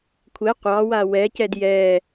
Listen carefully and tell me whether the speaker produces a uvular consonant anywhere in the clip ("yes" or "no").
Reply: yes